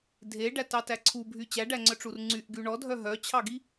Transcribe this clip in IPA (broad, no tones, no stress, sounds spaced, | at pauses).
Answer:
dʱ e ɖ æ t ɑ t æ ǀʰ u bʱ y t͡ɕ æ ɖ æ ŋ͡ǀ œ ʈ͡ʂ u r ŋ͡ǀ y ʔ ɡ y ɳ ɔ dʱ œ ɦ œ t͡ɕʰ ɑ ɡ i